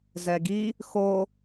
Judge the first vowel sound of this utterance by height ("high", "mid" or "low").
mid